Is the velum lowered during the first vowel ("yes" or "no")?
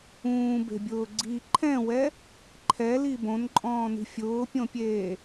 yes